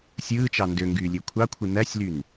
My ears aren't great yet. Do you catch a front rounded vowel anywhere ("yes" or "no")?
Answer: yes